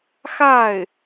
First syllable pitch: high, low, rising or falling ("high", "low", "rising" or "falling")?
falling